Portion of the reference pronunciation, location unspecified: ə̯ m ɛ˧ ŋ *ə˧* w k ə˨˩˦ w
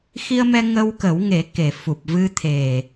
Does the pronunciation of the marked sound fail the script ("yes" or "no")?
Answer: no